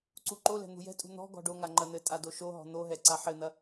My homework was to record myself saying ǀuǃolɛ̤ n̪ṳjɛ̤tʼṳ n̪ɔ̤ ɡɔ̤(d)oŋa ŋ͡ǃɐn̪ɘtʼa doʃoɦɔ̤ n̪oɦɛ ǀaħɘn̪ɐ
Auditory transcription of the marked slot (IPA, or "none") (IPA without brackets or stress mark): ɖ